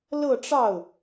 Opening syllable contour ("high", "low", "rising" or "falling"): falling